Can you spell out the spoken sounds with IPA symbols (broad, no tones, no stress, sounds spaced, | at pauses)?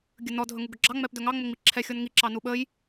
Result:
ɡʲ ɵ n ɔ dʱ ɵ ŋ u ɡ ɵ ɡ͡ǁ ɑ ŋ͡m ɛ p d ɵ ŋ ɑ ŋ͡m ə ŋ͡m i ǁʰ ɛ xʲ ɔ n ŋ i ǁ ɑ n u ɓ ə j